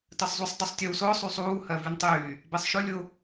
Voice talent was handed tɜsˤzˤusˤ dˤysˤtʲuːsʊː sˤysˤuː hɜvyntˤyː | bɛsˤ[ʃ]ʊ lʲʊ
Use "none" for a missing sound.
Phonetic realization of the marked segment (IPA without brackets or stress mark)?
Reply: ʃ